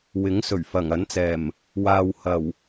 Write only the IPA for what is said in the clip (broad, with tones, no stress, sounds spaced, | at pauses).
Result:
w ɪ˨˥ ŋ s ɵ˨˩ ɥ f ɐ˨˩ ŋ ɐ˨˥ n t͡s ɛː˨˩ m | w aː˨ w h ɐ˨˩ w